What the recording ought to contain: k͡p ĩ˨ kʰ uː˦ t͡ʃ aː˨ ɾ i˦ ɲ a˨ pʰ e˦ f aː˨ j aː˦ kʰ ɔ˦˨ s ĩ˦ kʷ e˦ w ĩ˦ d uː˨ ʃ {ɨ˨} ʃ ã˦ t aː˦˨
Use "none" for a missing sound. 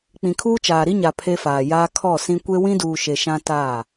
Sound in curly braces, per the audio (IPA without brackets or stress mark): e˨